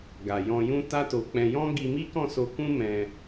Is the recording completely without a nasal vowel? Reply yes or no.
no